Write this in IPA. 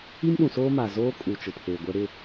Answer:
i˦ m ɗ ũ˨ s oː˦ m aː˨ z oː˦ kʼ u˨ t͡ʃ ʊ˨ pʰ eː˨ ɡʷ ɛ˦ ɾ ɪ˦˨

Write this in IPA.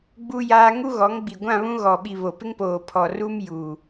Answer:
ɡ͡b u˦ j aː˦ ŋ u˦ ɣ ɔ˨˦ ŋ ɡ͡b i˨ ɡʷ ã˦˨ β ũ˦ ɣ ɔ˨ ɓ i˨ β o˨ p ɪ˦ ŋ p oː˨ pʰ ɔ˨ r u˦ m j uː˨

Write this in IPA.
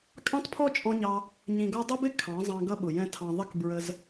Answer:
kʼ ɑ̃˦ t pʰ ɔ˦ t͡ʃʼ ɔ̃˧ ɲ ɑ˧ | ɲ ĩ˨ ɡ ɔ˧ dˤ ʊ˦ b ɪ˦ kʰ ɑ̃˨˦ zˤ ɑ̃˧ ɡ ʌ˦ ɓ ʊ˨ j ɛ̃˦ tʰ ɑ̃˧ ðˤ ə˦ k b ɹ ə˧ z

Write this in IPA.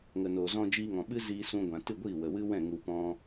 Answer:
ŋ ə˨ n oː˨ z ɔ̃˧ d͡ʒ iː˧ ŋ ɔ̃˨ ɓ ɨ˦ z iː˧ s ũ˧ ɡʷ ã˨ t ɨ˦˨ ɡʷ iː˦˨ w ə˨ w ɨ˦ w ɛ̃˦˨ ŋ u˧ p ɔ̃˦

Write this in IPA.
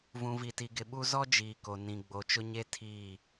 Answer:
v ũ˨ v i˨ t i˨ ɡ ɪ˨ ɓ u˦ z ɔ˦ d͡ʒ iː˨ k o˨ n ĩ˨ ɡ͡b o˨ t͡ʃ ʊ˦ ɲ e˦ tʰ iː˦˨

